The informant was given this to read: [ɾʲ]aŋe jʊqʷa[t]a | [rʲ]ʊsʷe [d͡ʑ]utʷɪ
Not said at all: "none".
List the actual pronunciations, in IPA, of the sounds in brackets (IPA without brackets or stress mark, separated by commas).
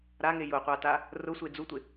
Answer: ɾ, t, r, d͡z